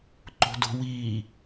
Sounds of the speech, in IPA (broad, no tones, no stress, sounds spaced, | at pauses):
ǃ o̤ d o̤ w iː